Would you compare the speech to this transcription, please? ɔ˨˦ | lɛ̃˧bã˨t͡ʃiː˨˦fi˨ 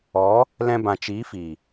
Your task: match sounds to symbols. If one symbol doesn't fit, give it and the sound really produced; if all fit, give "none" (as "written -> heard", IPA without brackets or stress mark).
none